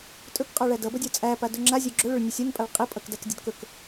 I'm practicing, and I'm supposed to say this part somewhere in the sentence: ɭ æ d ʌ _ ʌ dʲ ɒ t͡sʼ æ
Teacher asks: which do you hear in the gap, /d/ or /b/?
b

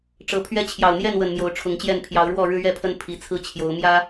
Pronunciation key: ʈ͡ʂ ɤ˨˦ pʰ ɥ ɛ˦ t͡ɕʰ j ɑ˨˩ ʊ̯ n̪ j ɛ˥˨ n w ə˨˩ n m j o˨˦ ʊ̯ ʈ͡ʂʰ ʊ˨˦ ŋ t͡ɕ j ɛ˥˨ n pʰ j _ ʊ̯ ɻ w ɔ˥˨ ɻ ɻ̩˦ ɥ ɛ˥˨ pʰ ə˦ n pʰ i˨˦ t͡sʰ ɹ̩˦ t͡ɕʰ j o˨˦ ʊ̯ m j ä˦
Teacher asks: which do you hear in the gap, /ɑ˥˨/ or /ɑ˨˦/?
ɑ˨˦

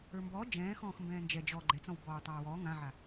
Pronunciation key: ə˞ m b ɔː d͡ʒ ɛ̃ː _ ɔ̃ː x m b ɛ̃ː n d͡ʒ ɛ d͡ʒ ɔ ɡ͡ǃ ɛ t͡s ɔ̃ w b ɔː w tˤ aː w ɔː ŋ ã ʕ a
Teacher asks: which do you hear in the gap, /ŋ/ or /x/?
x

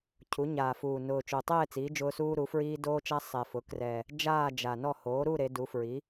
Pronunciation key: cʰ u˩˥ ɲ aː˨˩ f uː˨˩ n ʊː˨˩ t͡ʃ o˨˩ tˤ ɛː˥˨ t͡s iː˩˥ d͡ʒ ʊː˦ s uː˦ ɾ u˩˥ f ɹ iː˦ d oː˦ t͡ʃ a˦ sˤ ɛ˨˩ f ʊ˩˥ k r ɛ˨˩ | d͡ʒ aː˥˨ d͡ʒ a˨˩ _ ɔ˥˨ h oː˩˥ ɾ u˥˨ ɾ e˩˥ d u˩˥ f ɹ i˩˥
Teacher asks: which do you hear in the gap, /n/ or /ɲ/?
n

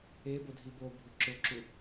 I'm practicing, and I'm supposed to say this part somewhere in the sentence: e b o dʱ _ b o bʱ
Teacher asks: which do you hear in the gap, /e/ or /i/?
i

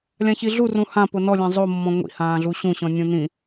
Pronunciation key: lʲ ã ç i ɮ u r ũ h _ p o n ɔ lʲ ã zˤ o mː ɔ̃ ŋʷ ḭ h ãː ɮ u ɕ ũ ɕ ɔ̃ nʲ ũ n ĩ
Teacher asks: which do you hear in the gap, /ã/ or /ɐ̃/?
ã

